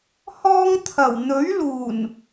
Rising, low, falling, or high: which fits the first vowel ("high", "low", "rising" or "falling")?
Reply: high